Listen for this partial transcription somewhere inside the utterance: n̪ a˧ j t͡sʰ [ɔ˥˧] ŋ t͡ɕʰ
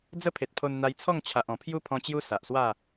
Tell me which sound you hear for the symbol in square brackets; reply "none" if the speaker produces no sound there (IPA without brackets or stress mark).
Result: ɔ˥˧